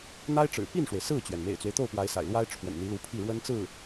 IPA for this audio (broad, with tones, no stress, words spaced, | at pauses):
n̪a˥ɪ̯ʈ͡ʂɻ̩˨˩ pi˥˩nʂwe˩ɪ̯ sɹ̩˥˩t͡ɕɥɛ˩n mḛ˨˩ɪ̯t͡swe˦ɪ̯t̪o˥˩ʊ̯ pwa˧˥ɪ̯sa̰˨˩ɪ̯lwa˥ɪ̯ ʈ͡ʂʰwə̰˨˩nn̪i˧˥lu˧˥pʰi˥˩ ɻwə˥nt͡sɹ̩˥˩